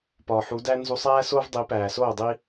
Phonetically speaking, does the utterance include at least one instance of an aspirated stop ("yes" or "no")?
no